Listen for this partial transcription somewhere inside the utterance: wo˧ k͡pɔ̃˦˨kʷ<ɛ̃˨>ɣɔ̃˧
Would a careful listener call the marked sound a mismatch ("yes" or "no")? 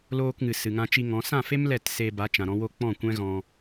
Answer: yes